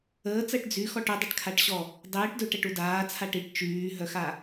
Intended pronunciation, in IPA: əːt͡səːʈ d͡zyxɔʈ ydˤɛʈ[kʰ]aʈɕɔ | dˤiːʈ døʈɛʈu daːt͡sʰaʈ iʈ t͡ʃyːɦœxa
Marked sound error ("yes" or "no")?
no